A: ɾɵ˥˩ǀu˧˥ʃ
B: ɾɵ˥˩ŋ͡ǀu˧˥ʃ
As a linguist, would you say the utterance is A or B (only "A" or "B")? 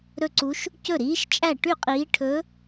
A